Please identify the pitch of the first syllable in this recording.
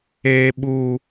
low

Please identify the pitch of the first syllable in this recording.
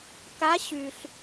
rising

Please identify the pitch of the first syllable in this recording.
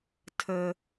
high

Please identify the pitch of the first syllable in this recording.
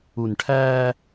low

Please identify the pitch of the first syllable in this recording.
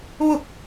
falling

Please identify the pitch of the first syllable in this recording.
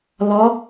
rising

